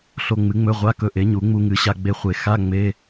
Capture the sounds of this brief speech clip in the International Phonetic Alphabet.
ɬ o˧ ŋ͡m ɨ˩˥ ŋ͡m ɵ˧˥˧ ʁʷ a˧˥˧ k ɵ˧ ʔ e˩˥ ɲ u˨˩˦ ŋ͡m u˧ ŋ ɨ˩˥ ɕ a˧ ɡ͡b e˧ χʷ e˨˩˦ x a˧˥˧ ŋ͡m e˧˥˧

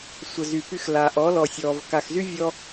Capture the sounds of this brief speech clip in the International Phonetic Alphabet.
sʷ ə˨ z y˨ p y˧ x l a˨ ʔ ɔ˨˦ l ɔ˨ sʲ ɔː˨ v k a˨ x z y˦ vʲ ɔ˦

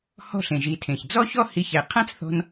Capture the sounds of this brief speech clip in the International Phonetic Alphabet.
h ɔ̤˦ ɬ ẽ˨ ʒ i˨˦ tʰ ẽ˨ ç d͡z ɔ˦ ç ɔ˦ h i˧ ç ɛ˨ qʰ ã˦ t͡s θ ɔ̤˧ n

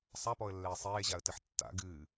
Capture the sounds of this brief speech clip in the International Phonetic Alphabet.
sˤ a p ɔ ə̯ lː ɛː sˤ eː ʑ a ə̯ t ɨ ħ tː a̰ ɡ ɨː

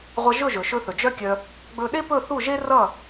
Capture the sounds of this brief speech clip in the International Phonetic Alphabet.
ʁʷ ʌ˧ ʒ ɵ˥˩ ʒ ɵ˩ ʃ ɵ˧ θ ɵ˩ d͡ʒ œ˥ kʲ œ˧ | ɡ͡b ɵ˧ ɗ e˥ p ɵ˥˩ θ u˥˩ ʒ e˥ r ʌ˥˩

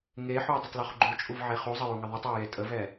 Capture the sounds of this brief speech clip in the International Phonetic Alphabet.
ŋ e ħ u j dˤ ə tˤ l o χ ɡ͡ǃ u t͡ʃʼ u v ʕ e χ u zˤ ə j u ŋ ə ðˤ u tˤ ɛ ɐ̯ j e tʼ ə v ɛ

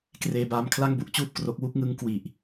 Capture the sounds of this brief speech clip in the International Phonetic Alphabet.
k r eː˧ b aː˧ m kʰ l a˥˩ ŋ b u˥˩ ʔ t͡ɕ uː˥˩ p̚ k r o˦˥ k̚ w u˦˥ k̚ ŋ ɯ˦˥ ŋ k w i˨˩ ʔ

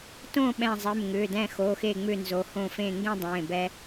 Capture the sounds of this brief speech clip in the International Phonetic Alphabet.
t õ˥˨ ɓ ɛ̃˧˩ zˤ e˩˧˩ m ŋ ʏː˩˧˩ d ɛ̃˧˩ x o˩˧˩ x e˧˩ ŋ͡m ʏ˧˩ n z o˩˧˩ h õː˥˨ f ẽː˥˨ ŋ ɡ ẽ˥˨ dˤ ẽː˩˧˩ b ɛ˦

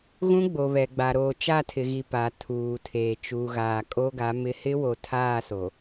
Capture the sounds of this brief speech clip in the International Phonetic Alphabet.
ɣ ũ˦ ɡ͡b o˨ β ɛ˨ ɡ͡b a˨ ɾ oː˨ t͡ʃ a˦˨ tʰ ɪ˨ ɣ i˨ p a˨ tʰ uː˨ tʰ eː˨ t͡ʃ uː˨ ɣ aː˨ kʼ o˦ ɡ a˨˦ m ɪ˦ h ɪ˦ w o˨ tʰ aː˦˨ s o˨

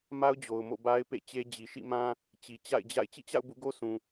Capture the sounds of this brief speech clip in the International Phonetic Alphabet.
m a˦ ʊ̯ d͡ʑ o˨ ʊ̯ m o̰˦˨ b a˦ ɪ̯ p ḛ˦˨ t͡ɕ e˦ d͡ʑ i˨ ʃ ḭ˦˨ m ã˦ | t͡ɕ i˨ t͡ɕ a̰˦˨ ɪ̯ d͡ʑ a̰˦˨ ɪ̯ t͡ɕ ḭ˦˨ t͡ɕ a̰˦˨ ʊ̯ b ṵ˦˨ ɡ o˦ s ũ˨

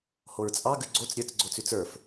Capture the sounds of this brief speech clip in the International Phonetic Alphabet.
h o ɹ t͡sʼ ɑ ɡ ʉ ɡ͡ǀ o t͡s ɾʲ ə˞ t͡s ɡ͡ǀ o t͡s ʉ t͡s ə˞ f

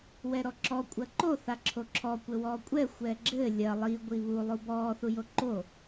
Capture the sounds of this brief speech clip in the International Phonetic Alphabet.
w ɛ ɾ ɔ ǁ ɔ kʷʼ ɐ ǃ o θ a ǁʰ o ǁʰ ɔ kʷ ɘ w ɔː kʷʼ ɛ xʷ ɛ ɡ͡ǁ ɘ lʲ ɐ lˠ i ɡʷ i β u lˠ u b ɔː θ u j o ǃ o

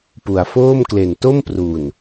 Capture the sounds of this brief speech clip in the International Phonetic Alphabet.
p u˩˦ a̯ f oː˥˩ m k l e˨˩ n t o˥˩ m p r u˨˩ n

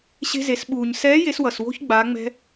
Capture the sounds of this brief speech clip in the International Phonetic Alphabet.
ɕ e̤˧ z e˩˧ s ɓ uː˩ ɲ s ɛː˧˥ j e˧˥ s w ʌ˩ s w o̤˥ ç ɡ͡b aː˩˧ ŋ͡m ɛ̤˧

